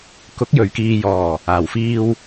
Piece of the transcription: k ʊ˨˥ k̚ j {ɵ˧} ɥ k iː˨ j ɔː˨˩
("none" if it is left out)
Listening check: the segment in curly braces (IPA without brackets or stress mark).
ɵ˨˩